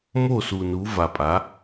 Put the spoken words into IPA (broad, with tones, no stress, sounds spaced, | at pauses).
m o˥˨ s u˨ n u˨˦ v a˨ pʼ a˨˦